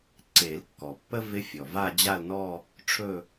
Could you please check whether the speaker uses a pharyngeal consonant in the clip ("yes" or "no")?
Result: no